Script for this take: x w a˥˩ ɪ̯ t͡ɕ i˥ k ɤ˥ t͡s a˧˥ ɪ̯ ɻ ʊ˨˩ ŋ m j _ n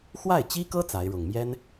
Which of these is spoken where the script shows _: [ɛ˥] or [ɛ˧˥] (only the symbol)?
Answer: ɛ˥